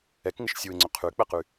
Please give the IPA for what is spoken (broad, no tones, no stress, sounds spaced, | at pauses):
ɛ k ŋ ɪ ʃ sʲ u ɪ̯ ŋ͡ǀ ʏ qʰ y k͡p ɛ q y